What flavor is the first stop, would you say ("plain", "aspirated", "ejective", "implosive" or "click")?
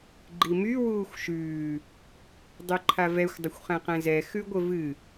click